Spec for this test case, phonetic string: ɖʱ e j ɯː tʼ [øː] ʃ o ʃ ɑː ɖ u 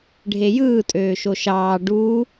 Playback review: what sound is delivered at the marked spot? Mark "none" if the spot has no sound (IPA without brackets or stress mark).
øː